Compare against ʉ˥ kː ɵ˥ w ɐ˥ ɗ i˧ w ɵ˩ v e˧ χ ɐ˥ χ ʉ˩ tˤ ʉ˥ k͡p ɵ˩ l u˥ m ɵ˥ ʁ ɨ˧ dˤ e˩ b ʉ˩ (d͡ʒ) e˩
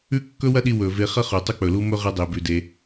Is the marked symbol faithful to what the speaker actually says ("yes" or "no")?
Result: no